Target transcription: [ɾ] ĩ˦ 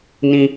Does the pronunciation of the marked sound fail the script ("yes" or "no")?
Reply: yes